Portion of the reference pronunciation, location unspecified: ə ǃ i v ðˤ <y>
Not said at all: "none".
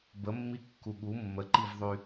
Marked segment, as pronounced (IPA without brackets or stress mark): y